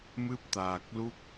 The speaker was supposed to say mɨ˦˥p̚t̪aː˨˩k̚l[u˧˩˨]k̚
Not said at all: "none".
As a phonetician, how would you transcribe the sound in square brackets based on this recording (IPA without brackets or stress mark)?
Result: u˦˥